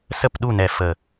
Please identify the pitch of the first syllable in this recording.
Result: falling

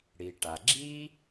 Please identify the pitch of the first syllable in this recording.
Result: low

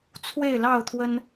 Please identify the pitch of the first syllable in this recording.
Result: falling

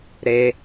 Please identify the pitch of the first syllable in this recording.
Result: low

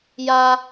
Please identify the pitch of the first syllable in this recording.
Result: high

